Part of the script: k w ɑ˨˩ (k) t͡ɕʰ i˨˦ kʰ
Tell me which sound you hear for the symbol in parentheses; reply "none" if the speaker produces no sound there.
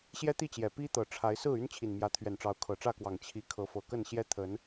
ŋ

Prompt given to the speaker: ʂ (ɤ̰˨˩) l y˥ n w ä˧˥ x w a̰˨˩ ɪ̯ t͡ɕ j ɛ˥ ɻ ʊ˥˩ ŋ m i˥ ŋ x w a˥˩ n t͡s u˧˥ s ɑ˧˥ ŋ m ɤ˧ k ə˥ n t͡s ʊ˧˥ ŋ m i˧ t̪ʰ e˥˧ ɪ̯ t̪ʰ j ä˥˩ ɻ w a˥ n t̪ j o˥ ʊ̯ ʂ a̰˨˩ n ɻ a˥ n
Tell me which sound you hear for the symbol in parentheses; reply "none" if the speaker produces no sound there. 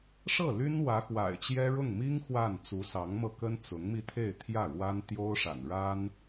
ɤ˥˩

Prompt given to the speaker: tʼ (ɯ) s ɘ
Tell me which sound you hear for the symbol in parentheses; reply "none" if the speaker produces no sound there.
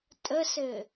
ə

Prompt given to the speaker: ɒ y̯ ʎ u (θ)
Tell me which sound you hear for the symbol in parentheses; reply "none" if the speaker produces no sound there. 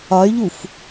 f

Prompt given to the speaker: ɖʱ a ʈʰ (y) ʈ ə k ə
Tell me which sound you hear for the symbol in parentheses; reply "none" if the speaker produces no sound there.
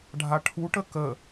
u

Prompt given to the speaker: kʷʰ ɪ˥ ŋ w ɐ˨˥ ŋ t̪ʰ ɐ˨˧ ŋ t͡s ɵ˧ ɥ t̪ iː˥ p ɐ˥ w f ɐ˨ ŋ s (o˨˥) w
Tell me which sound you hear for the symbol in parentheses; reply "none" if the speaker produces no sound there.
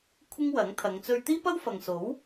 o˨˥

